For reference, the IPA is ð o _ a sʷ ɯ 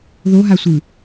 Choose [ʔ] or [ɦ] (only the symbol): ɦ